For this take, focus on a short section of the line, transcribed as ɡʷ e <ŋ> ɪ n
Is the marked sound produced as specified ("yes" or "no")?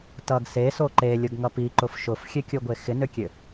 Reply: no